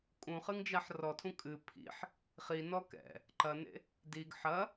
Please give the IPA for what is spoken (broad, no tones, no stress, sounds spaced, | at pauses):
kʼ ũ χ ɨ ŋ d͡ʒ a ħ r ɔ tʰ ũ kʼ ɨ pʰ ḭ ħ | χ i n ɔ k ɛ̰ | ǃ ɐ n ḛ | d i ɡ ħ ɐ